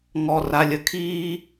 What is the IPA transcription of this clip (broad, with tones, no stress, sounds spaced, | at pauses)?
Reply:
ŋ ɔ˨ r a˨ lʲ ə˨ kʰ iː˦